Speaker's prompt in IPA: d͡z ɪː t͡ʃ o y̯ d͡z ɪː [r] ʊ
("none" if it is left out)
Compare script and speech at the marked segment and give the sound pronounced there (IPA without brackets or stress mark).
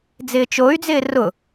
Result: r